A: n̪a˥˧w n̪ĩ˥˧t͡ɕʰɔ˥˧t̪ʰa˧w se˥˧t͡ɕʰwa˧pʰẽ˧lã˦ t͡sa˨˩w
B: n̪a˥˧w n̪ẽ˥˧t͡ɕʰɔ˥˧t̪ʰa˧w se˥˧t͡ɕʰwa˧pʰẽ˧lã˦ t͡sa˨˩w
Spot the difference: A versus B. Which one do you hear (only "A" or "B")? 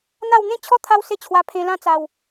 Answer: B